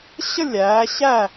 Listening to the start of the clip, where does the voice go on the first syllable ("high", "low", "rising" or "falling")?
falling